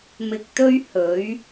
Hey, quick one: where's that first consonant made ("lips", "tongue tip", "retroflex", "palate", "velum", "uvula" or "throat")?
lips